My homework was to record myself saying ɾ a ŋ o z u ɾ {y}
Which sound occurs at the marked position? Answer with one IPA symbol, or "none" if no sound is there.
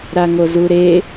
e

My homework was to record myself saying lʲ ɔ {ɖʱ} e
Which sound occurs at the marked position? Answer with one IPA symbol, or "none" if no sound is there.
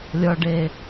ɖ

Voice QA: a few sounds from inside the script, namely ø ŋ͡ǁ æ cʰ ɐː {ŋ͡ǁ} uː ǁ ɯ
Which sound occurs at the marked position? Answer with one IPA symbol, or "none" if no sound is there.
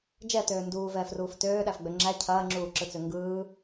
ŋ͡ǁ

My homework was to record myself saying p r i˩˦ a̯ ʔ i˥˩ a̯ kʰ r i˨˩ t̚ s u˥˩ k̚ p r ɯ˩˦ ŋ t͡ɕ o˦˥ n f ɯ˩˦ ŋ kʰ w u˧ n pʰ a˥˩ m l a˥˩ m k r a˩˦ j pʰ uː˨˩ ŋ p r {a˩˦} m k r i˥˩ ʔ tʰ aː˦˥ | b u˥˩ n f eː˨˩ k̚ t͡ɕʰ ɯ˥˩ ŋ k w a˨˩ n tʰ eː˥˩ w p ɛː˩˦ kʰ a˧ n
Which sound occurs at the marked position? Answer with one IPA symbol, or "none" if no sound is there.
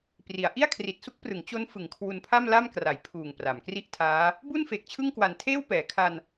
a˩˦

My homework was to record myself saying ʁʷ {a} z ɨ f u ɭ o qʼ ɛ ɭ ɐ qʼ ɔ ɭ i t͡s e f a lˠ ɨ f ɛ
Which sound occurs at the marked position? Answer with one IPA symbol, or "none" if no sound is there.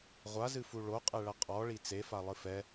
a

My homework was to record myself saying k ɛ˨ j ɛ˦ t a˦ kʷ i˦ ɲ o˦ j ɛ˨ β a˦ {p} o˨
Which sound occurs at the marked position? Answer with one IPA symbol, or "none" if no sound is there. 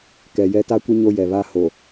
h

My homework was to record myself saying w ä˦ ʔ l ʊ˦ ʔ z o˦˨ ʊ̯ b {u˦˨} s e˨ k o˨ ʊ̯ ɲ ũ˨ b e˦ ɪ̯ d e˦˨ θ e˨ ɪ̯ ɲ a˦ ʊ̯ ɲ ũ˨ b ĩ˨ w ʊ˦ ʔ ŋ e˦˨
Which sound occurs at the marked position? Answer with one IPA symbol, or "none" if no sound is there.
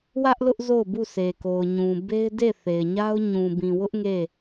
u˦˨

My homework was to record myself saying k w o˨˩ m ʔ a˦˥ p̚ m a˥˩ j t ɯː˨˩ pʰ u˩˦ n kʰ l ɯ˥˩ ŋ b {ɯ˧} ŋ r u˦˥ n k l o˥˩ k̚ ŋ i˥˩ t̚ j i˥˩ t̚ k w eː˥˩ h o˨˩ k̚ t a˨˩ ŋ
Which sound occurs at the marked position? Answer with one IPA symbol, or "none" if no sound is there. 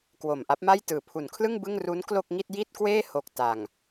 ɯ˥˩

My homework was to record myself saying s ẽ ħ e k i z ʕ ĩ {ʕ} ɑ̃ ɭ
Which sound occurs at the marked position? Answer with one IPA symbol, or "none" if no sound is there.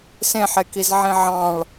ʕ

